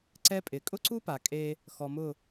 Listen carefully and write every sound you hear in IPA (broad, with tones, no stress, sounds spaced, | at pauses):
ǀ ɛ˦ pʼ ɪ˨ kʼ ʊ˦ ǀ u˦ p a˨ kʼ e˦ | x ɔ˨ m ʊ˦˨